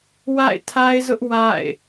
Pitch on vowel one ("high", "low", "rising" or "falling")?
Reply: falling